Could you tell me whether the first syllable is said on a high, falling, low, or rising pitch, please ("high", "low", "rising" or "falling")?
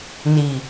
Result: low